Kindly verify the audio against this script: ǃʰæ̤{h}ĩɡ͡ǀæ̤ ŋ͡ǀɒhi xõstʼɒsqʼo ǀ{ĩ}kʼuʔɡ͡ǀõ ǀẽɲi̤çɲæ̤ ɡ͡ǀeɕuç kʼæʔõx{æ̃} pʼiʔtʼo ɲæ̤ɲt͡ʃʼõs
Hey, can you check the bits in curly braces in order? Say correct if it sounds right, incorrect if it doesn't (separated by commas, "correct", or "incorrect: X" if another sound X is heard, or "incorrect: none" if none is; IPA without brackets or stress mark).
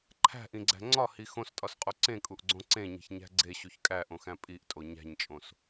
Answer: incorrect: ʔ, incorrect: ẽ, correct